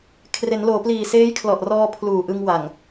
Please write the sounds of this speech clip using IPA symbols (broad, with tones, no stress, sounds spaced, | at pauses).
kʰ r e˩˦ n l oː˩˦ p l iː˨˩ s eː˦˥ j kʰ l ɔ˨˩ ʔ r ɔː˧ pʰ l uː˨˩ ʔ ɯ˧ ŋ w a˨˩ ŋ